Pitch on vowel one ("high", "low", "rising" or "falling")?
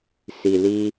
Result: low